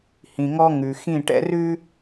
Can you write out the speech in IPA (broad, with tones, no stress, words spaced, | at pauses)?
hĩ˨ŋɔ˦ŋʉ˨ xĩ˦˨ʈɛ̰˦rʉ˦